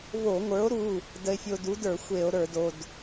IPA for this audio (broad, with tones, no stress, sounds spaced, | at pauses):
v o˧˩˧ ŋʷ ə˞˨˥ o̯ ɾ u˩˧˩ | d ə˧ e̯ fʲ o˧ d u˨˥ d ə˞˧˩˧ xʷ e˧˩˧ o̯ ɾ ə˞˧˩˧ d o˩˧˩ d